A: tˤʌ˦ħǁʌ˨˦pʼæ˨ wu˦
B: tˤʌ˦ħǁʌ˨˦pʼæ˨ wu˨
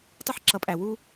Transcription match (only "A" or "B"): A